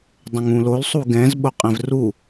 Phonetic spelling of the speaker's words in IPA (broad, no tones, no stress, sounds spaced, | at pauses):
dˤ ə̃ ŋ ũ l o l sˤ u ɡ ɛ̃ z ɓ o qʼ ɛ̃ v r u